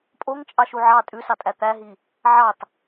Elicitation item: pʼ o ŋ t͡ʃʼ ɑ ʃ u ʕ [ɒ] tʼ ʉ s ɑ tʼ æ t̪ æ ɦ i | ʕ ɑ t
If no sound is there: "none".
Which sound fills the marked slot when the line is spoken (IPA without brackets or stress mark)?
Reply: ɑ